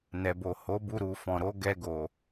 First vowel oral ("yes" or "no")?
yes